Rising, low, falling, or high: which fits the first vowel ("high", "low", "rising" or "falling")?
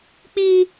high